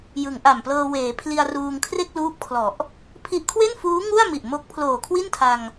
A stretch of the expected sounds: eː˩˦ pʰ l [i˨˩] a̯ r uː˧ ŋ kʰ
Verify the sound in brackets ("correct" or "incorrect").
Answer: incorrect